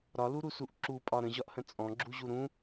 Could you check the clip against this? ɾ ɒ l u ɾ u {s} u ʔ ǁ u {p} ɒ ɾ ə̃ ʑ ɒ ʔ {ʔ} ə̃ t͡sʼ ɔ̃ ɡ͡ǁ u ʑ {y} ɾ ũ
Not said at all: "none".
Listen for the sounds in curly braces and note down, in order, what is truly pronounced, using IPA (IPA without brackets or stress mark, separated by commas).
s, pʼ, h, u